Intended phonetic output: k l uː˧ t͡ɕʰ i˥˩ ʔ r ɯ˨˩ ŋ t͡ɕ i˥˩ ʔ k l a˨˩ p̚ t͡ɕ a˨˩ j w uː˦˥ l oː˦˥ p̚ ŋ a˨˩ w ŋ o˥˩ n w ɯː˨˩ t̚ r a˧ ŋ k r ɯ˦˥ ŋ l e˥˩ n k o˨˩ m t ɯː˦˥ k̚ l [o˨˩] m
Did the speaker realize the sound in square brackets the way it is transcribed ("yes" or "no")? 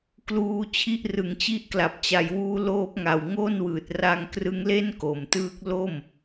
no